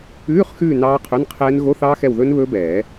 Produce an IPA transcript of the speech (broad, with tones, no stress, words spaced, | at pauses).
ʉː˧˥˧χxʉː˦˨ nɑː˦˥qʰɵ˧˥˧nqʰɛː˦˥n ɣo˧˥˧θɑː˦˥xɛ˦˨wðɵː˦˥n βɵː˦˥bɛː˨˩˦